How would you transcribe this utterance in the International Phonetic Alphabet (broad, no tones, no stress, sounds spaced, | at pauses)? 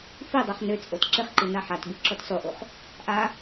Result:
f i dˤ œ χ n ø t͡sʼ o t ǁ ɪ χ ǃ i n a ħ a t b i ǁ o t sˤ u ʔ u χ | ʔ a